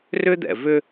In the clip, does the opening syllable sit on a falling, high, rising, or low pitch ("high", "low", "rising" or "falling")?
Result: high